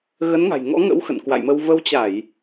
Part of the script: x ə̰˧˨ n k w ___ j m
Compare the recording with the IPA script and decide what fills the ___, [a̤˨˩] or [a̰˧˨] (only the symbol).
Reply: a̰˧˨